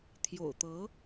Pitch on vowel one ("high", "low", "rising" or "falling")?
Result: low